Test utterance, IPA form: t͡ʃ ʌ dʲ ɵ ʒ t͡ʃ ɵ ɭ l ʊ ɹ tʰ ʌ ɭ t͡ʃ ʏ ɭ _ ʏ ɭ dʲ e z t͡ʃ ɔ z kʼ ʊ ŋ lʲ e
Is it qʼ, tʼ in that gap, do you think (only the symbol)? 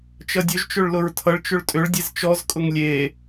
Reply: tʼ